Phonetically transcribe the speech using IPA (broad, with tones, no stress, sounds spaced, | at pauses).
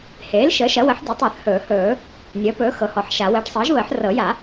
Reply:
h eː˩˥ l ʃ əː˩˥ ʃ ɐ˩˥ w ə˩˥ ħ dʲ ɵ˩˥ tˤ əː˨˩˦ θ h ɵː˨˩˦ h ɵː˨˩˦ | nʲ əː˩˥ p ɵː˩˥ x ɤ˩˥ h ɔ˨˩˦ ħ ʃ a˨˩˦ w əː˩˥ ʈ sˤ əː˩˥ ʒ β əː˨˩˦ ħ r ɤ˨˩˦ j a˨˩˦